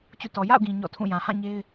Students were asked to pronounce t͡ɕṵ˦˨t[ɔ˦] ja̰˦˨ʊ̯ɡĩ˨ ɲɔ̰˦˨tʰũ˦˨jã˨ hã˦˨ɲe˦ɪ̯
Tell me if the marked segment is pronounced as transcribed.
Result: no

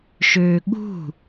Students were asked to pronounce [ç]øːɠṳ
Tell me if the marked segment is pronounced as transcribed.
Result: no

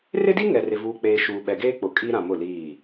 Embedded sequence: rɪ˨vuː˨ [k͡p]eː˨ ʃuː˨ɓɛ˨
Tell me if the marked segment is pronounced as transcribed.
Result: yes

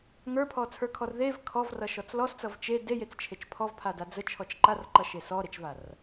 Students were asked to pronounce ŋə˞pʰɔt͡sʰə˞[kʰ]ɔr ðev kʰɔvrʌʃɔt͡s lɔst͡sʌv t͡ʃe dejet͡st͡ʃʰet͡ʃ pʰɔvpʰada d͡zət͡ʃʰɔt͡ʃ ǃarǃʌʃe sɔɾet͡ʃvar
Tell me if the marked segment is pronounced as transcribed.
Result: yes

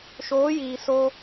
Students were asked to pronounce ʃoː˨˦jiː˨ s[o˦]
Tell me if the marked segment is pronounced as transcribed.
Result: yes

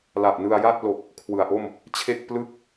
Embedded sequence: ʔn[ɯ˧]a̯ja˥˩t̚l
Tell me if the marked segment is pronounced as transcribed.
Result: yes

